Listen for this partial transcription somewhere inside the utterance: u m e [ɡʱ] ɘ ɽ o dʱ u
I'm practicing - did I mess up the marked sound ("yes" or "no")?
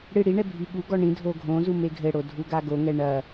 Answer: no